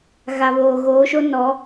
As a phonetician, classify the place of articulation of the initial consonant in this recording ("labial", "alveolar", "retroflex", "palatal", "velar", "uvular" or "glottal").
velar